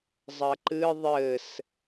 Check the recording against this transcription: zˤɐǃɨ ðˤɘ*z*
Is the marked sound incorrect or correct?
incorrect